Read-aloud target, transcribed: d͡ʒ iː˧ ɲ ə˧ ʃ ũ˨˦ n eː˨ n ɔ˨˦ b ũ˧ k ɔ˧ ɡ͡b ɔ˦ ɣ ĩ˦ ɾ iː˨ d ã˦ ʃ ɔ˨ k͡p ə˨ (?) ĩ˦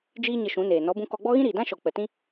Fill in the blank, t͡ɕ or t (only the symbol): t